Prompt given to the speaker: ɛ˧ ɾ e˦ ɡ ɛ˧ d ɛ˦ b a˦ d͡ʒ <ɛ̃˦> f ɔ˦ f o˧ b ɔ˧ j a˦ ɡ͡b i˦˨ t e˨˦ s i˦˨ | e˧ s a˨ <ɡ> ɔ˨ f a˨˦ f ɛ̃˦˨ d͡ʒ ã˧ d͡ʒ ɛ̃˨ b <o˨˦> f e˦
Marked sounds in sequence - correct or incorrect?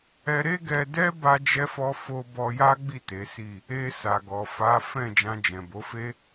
incorrect, correct, correct

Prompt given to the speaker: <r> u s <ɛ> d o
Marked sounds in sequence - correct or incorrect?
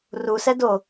correct, correct

